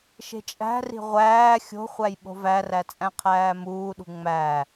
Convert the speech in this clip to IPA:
ʃ e̤ t͡ʃʼ æ̤ r i̤ ʁʷ æː xʲ o̤ χʷ æ j ɓ o̤ v æ r æ t͡sʼ æ̃ qʰ æː m uː ɗ ṳ ŋ͡m æ

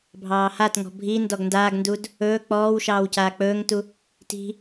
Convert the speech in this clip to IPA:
bʱ ɑː h a t ŋ ɔ̤ bʱ i n d ɔ ɡ n d aː ɡ n d u d | ɵː k͡p ɔː w ʃ ɑː w c aː k͡p ɵː ŋ t u | t i̤

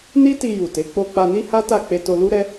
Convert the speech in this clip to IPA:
n i˦ t i˧ j u˨ t e˨˦ k͡p o˧ k͡p a˧ n i˦ h a˦ t a˦˨ k͡p e˧ t o˧ l u˦ ɾ ɛ˦

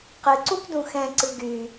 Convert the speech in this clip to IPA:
q ɨ ǀ u p d ũ x ɛ̃ ǀ ɨ ɡ y

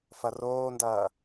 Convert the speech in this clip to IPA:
f ɐ r oː n d ɐː

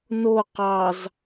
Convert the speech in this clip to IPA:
n o q ɑ z

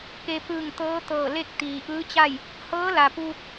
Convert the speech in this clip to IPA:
k e˧ p ɯː˧˩ ŋ t̪ ɤː˧˥ t̪ ɤː˧˩ l e˥˨ k̚ t̪ iː˩ ʔ ɯː˧˥ t͡ɕ a˥˨ j | h ɤː˧˥ l a˩ p uː˧ k̚

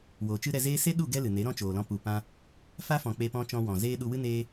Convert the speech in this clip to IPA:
w oː˨ t͡ʃ ɨ˦ ɾ ɛ˧ z eː˦ s e˦ ɗ u˦˨ ɡ ɛ˦ l ɨ˨ n e˨˦ ɾ ɔ̃˦ t͡ʃ oː˨ l ɔ̃˧ p u˨ p ã˧ | f a˦ f ɔ̃˨ k͡p e˧ p ɔ̃˦ t͡ʃ ɔ̃˧ w ɔ̃˨ z eː˦ ɗ u˧ w ɨ˦ n eː˦

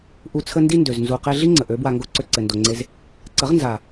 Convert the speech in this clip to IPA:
ʔ u˧ t͡sʰ ə˦ n d i˦ n d ø˨ z n z u˨ q e˧ ɮ i˦ ŋ͡ǀ ə˨ ʔ ø˨˦ b w a˧ ŋ ɡ o˦ ǀ ø˧ ǀ ɘ˨ n d o˨ ŋ͡ǀ e˧ z | ǀ ə˨˦ ʁ n z a˨

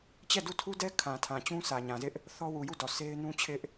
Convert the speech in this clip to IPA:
t͡ɕ ɛ˦˨ d u˦˨ tʰ u˦ d ɛ˦ kʰ ã˨ tʰ ã˨ t͡ɕ ũ˦ s ä˨ ɲ ã˨ z ɪ˦ ʔ | θ ɔ˦ w u˨ j u˦˨ d ɔ˨ s e˦ ɪ̯ n ũ˦ t͡ɕʰ ɪ˦ ʔ

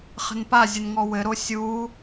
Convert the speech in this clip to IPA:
χ ə̤ n p a zʲ ʊ n ŋ ɔ w ɘ ɾ o sʲ u

